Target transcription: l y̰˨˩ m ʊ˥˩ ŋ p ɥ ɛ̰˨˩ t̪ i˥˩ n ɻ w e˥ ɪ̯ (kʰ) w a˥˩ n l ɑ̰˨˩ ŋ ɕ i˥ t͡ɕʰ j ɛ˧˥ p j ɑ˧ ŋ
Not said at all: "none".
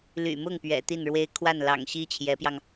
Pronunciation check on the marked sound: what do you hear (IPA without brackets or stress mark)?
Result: kʰ